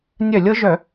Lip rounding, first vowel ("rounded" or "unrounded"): rounded